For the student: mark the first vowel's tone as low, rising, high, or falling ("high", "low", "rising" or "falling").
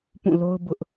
falling